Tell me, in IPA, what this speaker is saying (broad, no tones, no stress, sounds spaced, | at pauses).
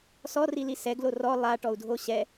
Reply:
s ɔ r i l i s ɛ ɡ l o r ɔ lˠ a ʈ ɔ u̯ dʱ o ɕ ɛ